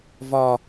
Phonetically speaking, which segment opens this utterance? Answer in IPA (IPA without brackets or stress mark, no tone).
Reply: v